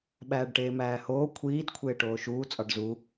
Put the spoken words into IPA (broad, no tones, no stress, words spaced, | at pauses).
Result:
ɓæːɖʈeːmæːhoː kʷʰiːd kʷʰeːʈoːʃuː t͡sʼɒɖzu